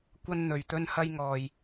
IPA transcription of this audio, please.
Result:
kʷ ɐ˥ n n̪ ɵ˨ ɥ t̪ ɵ˥ n h ɐ˥ j ŋ ɔː˨ j

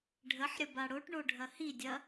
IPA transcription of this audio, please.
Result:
ɖʱ ə ħ ɾʲ ə b a ɽ o ʈ ɳ o ɖʱ ɐ h i dʲ ɐ

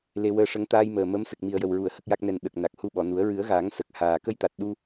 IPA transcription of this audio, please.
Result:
l e˧ w əː˧ ʂ ə˧˥ ŋ t̪ aː˧ j m əː˨˩ m ə˧˥ m s ə˨˩ k̚ m i˨˩ ə̯ j ə˨˩ w ɹ u˨˩˨ ə̯ h ə˦˥ k̚ j a˦˥ k̚ n ɛ˧ n ɗ ə˨˩ k̚ n a˨˩ k̚ h u˧ ɓ ɔ˨˩˨ n u˨˩˦ ə̯ ɹ ɨ˨˩˦ ə̯ ɣ aː˨˩˦ ŋ s ə˨˩ k̚ h aː˨˩ k ə˧ j t̪ a˨˩ t̚ ɗ u˧

